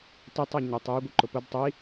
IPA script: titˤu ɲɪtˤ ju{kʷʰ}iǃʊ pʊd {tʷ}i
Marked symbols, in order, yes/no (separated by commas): no, no